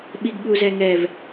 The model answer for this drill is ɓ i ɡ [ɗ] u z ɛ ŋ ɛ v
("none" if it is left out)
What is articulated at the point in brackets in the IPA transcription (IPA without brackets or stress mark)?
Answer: ɠ